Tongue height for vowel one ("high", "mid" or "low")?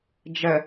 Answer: mid